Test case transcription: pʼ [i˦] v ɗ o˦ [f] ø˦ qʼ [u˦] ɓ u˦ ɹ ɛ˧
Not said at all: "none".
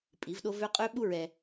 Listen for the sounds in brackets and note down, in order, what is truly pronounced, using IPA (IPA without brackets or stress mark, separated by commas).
i˨˦, v, ø˦